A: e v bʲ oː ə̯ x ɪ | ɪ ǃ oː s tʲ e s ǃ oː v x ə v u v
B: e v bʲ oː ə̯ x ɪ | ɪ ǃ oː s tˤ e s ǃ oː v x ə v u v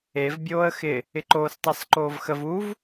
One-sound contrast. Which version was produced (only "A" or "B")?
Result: B